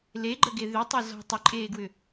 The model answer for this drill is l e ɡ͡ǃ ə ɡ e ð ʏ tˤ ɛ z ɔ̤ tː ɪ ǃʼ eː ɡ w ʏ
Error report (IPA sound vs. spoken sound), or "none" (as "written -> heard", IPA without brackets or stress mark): tː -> tˤ